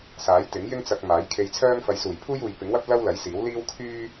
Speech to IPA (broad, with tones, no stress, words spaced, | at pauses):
saː˨˥jt̪ɪ˨˥ŋ jɪ˥ŋt͡sɐ˧k̚ maː˨˥jkʰe˧jt͡sʰœː˥ŋ fɐ˨˧jsuː˨˩jpʰuː˥juː˨j pɪ˨˥ŋwɐ˥p̚ lɐ˥wlɐ˨˥jsiː˨˥w liː˥w kʰyː˥